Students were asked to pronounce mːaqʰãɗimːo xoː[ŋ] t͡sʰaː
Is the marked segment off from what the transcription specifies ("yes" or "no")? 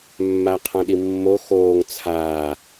no